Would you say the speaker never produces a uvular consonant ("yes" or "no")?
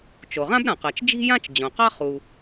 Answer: no